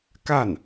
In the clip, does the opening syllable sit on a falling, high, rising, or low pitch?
falling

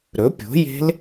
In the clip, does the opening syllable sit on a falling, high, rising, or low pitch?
rising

